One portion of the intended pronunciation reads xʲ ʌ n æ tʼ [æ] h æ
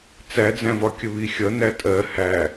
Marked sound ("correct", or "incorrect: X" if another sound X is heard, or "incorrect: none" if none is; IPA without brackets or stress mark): incorrect: ɜ